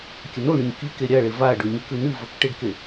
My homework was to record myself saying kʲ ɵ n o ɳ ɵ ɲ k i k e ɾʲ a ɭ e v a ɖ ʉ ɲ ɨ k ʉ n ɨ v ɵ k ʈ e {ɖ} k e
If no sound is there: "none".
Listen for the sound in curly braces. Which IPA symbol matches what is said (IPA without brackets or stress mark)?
ɖ